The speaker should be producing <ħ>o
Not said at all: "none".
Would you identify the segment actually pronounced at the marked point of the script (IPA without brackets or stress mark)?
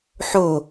ħ